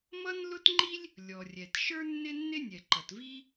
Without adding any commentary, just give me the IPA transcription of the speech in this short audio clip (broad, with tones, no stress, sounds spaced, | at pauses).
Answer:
m ʌ˥ n l ʊ˥ t ŋ͡ǃ i˥ lʲ | lʲ ɔ˩ rʲ ɛ˩ t ʃ ə˞˥ nː ɪ˥ nː ɪ˥ nʲ ɛ˩ ǃ ʌ˩ t v i˥